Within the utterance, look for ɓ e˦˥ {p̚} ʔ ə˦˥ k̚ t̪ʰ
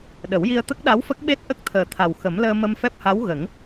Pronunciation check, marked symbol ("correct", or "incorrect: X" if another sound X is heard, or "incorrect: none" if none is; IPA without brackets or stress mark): incorrect: t̚